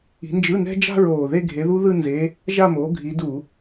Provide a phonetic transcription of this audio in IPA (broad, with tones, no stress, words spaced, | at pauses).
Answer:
i̤˨˦nd͡ʒɯ˧˥˧nɛ̤˥ d͡ʒa̤˥ɹoː˨˩ðe˥˧ ɡʱe˨˦ðu˥ ðɯ˥˧nze˨˦ | ʒa˥˧moː˨˦ɡʱi˨˦ du˧˩˧